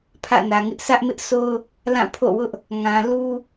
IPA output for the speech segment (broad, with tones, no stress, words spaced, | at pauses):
pʰä̰˦˨nä˨ŋɪ˦ʔ sä˦ʔmɪ˦ʔsʰo˦ʊ̯ | lã˦˨pʰo̰˦˨wʊ˦ʔ | ŋã˨ lu˦